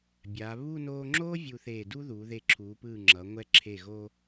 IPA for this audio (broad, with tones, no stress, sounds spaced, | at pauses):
bʲ a˩˧ β u˥˧ n oː˧ ŋ͡ǁ oː˥ vʲ u˧ θ eː˧˩ d u˥ ð uː˩˧ ð e˧˩ ǁʰ uː˩˧ p ɯː˧˩ ŋ͡ǁ ʌ˩˧ ŋʷ ɛ˧ ǁʰ e˧˩ ɣ o˧